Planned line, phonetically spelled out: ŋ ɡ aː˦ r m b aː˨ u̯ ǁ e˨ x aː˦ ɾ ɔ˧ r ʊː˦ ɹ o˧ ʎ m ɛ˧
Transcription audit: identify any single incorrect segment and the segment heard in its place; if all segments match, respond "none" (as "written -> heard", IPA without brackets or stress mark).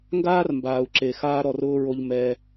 none